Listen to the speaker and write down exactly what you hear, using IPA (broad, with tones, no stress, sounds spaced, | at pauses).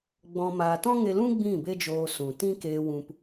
ɡ͡b ɔ̃˧ m aː˧ t ɔ̃˦ ŋ e˧ l ũ˦ ɡ͡b ĩ˦˨ b e˦ d͡ʒ oː˧ s ũ˨ t ĩ˦ k eː˧ w ũ˧ p